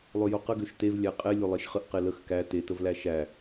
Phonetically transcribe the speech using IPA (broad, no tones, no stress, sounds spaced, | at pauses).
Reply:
lˠ ø j o q ə ɡ ø ʃ t e v lʲ æ qʼ e lʲ o lˠ e ʃ χ ə ʔ q e l ə x k æ t e t ə v l æ ʃ æ